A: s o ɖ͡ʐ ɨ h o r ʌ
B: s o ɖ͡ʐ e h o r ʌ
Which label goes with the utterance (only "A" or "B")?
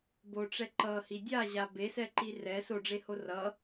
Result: B